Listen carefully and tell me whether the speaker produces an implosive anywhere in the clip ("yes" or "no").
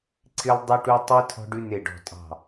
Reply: no